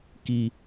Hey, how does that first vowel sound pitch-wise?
low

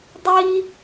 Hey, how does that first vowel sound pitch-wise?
high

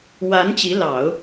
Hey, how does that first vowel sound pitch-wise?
rising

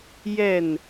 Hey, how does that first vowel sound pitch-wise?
falling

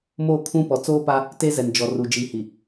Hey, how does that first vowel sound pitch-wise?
falling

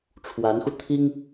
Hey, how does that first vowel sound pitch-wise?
rising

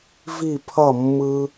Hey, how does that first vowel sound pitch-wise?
falling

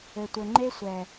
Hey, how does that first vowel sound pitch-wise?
low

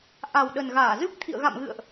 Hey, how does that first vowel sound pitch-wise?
low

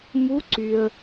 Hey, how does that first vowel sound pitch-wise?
rising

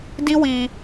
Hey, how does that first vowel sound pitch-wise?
high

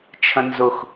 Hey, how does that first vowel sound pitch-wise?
high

